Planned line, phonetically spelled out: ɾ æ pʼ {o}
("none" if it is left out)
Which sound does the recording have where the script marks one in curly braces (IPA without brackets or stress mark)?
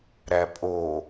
o